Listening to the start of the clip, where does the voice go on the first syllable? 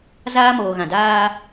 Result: high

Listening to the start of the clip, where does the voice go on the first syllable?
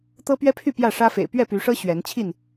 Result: high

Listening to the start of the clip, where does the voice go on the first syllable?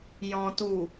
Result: low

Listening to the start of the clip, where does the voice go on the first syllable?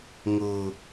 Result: low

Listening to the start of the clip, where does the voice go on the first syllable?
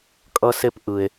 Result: high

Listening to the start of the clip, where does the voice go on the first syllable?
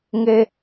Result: high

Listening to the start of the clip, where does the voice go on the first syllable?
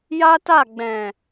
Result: high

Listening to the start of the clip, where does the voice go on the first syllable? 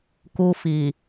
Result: high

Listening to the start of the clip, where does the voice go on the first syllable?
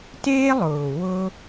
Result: high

